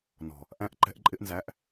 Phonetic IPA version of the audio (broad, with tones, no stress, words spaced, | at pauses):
nɔ̤˨ | ʔæ̃˧ʔǃɛ̤˧ʔ ǃʼɪ˧ʔnzæ˨˦ʔ